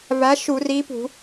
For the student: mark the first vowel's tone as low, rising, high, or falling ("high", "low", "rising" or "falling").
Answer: rising